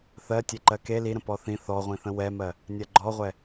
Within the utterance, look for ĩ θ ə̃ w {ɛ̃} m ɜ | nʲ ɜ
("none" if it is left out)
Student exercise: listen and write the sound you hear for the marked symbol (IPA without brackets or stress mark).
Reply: ɛ